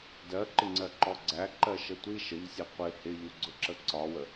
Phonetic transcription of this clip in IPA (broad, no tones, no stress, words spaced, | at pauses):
dɜǃɪŋ͡ǀɜǃɔ ɡ͡ǀæǃɜʃə tʷi ʃəʎsʲɛ qʷɪ hɪʎuɡ͡ǀʊǁə ǀɒwə